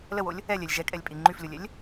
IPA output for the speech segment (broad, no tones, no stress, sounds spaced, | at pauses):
l ə w o lʲ | ɛ lʲ ɛ lʲ ʒ ɛ kʼ ɛ lʲ pʼ i ŋ͡ǃ y f lʲ o lʲ ɛ lʲ